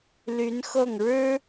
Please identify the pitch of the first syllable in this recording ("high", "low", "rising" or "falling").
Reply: rising